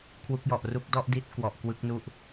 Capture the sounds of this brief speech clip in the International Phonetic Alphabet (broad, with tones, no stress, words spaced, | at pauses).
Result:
kʰwu˦˥k̚jɔ˨˩ʔru˥˩k̚ dɔ˥˩ʔdi˦˥t̚ kwɔ˨˩ʔkwɯ˦˥k̚nu˥˩ʔ